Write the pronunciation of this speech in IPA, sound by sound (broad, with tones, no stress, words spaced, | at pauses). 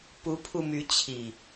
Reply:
pu˨˦pʰu˧ my˨˦t͡ɕʰi˨˩